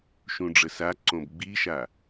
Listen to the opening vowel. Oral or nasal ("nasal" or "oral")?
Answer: nasal